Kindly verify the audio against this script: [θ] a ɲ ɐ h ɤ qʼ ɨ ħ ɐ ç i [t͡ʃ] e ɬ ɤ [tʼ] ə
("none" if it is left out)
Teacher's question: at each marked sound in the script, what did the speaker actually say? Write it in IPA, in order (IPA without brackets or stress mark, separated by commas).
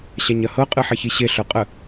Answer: ɕ, ɕ, qʼ